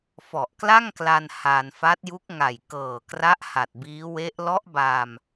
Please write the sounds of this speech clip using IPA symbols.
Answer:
fɔ˨˩ʔkla˥˩ŋkla˧n ha˧n fa˦˥t̚ju˦˥k̚ ŋa˨˩jkɤː˨˩kra˦˥ʔ ha˨˩t̚biː˦˥we˦˥ʔ lɔ˦˥ʔbaː˧m

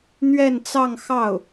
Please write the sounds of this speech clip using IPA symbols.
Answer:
n̪ɥɛ˥˧nt͡sɑ˥˧ŋxɑ˥˩ʊ̯

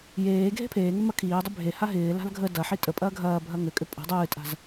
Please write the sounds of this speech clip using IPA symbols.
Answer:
jeː ɡʱe̤pʰeːŋʏ mɐkʰiːdˤʏ bʱe haɦɪːla̤l ɡʱə dɐħi tʼəpʼɐː ɡʱɐːbʱɐ ŋʏkʼʏ pʼə̤ dˤɨːtʼa̤z

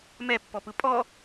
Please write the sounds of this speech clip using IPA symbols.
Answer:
mɛpːɔpɯ pʼɔ

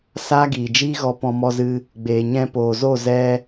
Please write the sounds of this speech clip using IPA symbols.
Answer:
saː˦ɡiː˨d͡ʒiː˦ɣɔ˧ pɔ̃˧mɔ˧zɨ˧ | ɡ͡beː˨ɲɛ̃˧poː˨zo˦˨ zɛ˦

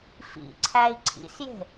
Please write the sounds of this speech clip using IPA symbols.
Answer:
fḭǀʰæi̯ ǀʰḭsje̤

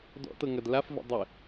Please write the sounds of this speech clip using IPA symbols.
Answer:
dɔ̰tɤ ŋɐdlafvə̰ dˤə

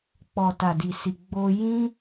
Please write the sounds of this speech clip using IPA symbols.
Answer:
k͡pɔ˨ta˨di˨si˨ ɡ͡bo˧jĩ˦

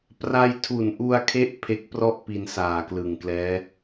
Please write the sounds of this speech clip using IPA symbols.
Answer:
pra˧jtʰu˨˩nʔu˧a̯kʰe˦˥ʔ pʰe˦˥k̚prɔ˥˩ʔpi˧n saː˨˩klɯ˨˩ŋklɛː˦˥

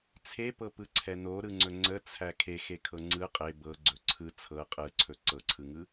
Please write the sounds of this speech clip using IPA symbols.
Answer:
t͡sʰepɤpɯǀʰɛ noɾɯŋ͡ǀɵ ŋ͡ǀət͡sʰæ kʰexekʰɤ ŋ͡ǀɯ qʼe bɤɡ͡ǀɵ ǀʰɯ t͡sʰɤ qʼɯǀʰɵ ǀɤǀʰɯŋɯ

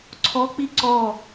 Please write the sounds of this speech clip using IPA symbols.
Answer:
ǀʰɔk͡pi ǀɔ

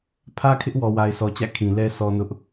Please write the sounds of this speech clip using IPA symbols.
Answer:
pʰä˦kʰɪ˦ʔ wɔ˨wa˨ɪ̯sɔ˨t͡ɕä̰˦˨ kʰĩ˨lɛ˦ sɔ˦nʊ˦ʔ

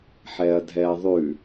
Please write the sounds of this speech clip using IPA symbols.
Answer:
ħɛɐ̯dʱɛɐ̯ðˤʉ

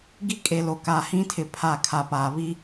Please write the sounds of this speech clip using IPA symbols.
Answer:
ɡi˦kʼe˨lo˨ ka˨hĩ˦tʰɪ˨ pʰa˦˨kʰa˨paː˨ βi˦

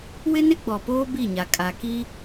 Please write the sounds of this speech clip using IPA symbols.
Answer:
wɪ˦nɪ˦ɡ͡bɔ˨poː˦ bi˦˨ɲa˨kʼa˨ ki˦

